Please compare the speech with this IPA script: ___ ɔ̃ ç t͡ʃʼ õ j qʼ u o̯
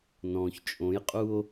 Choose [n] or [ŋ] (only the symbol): n